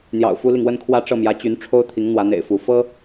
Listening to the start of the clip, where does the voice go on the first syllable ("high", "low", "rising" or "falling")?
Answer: low